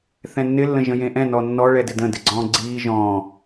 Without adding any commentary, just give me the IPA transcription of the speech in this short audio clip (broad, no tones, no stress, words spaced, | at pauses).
θɛ̃nːɪ lːə̃ʒə̃jẽʔɛ̃ nɔnːɔ ɭɛdɪdə̃ dɪɡ͡ǀɔ̃ːɡ͡ǀiː ʒɔ̃ː